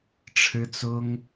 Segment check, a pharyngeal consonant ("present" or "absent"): absent